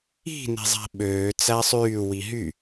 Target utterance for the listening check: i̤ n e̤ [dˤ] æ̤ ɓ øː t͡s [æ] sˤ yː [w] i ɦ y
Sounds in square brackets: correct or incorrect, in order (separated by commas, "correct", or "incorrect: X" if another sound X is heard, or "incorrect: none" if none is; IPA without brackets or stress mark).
incorrect: zˤ, correct, correct